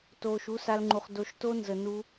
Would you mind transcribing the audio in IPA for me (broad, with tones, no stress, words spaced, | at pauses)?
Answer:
toː˧ʃu˦sa˦lŋ͡ǃu˧χ do˧ʃto˦nzə˧ nu˦